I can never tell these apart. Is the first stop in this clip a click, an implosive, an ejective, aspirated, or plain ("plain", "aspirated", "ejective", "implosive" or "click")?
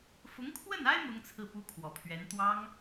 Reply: aspirated